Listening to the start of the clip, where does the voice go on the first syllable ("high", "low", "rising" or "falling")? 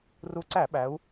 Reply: rising